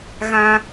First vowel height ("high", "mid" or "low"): low